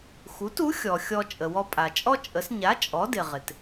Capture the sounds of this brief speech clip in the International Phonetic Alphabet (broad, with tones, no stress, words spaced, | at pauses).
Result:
xu˩˥tu˩˥ xʲɔ˩xʲɔ˧ t͡ʃʼə˩wɔ˧ pʼa˩t͡ʃʼɔ˥t͡ʃʼə˩˥s ɲa˩˥ t͡ʃʼɔ˩˥dɪ˩ ʁɪ˩t